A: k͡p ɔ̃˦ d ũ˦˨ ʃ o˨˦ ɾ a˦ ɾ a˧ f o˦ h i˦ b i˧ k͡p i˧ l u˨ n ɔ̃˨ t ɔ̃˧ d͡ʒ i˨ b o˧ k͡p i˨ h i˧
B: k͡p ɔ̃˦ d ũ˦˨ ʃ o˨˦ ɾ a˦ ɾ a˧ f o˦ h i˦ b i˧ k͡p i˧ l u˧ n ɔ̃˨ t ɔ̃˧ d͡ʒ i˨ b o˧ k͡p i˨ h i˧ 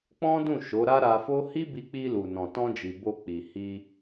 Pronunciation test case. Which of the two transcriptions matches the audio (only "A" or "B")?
A